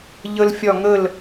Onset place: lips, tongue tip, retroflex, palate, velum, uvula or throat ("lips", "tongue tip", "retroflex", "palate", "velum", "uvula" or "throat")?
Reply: palate